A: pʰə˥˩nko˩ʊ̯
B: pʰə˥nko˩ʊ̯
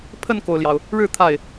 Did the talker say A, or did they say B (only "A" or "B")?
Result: A